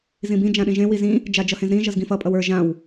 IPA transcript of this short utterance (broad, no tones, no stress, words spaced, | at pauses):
zĩbĩ d͡ʒãɗĩʒẽ wizĩ | d͡ʒad͡ʒʌhẽzɾĩ ʒʌzɡĩfʌ pʼʌwə˞ ʒãw